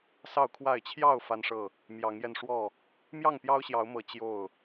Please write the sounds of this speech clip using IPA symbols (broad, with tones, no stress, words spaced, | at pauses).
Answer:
sɑ˥˨ʊ̯kʰwa˥˨ɪ̯ t͡ɕʰjɑ˥˨ʊ̯ fa˦nʂɤ˥˨ | mjɑ˨˦ŋjɛ˧nʂwɔ˥˨ | mjɑ˥˨ŋpjɑ˦ʊ̯ɕjɑ˨˦ʊ̯mɤ˨˦ t͡ɕjo˥˨ʊ̯